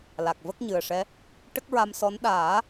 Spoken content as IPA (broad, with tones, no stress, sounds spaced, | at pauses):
l a˨˩ k̚ v ə˦˥ k̚ ɲ ɨ˨˩ ə̯ ʂ ɛ˧˥ | ʈ ə˦˥ k̚ ɹ a˧ m s ɔ˧˥ n ɗ aː˨˩˦